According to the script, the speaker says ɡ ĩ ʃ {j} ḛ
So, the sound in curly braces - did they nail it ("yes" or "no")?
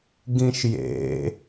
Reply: yes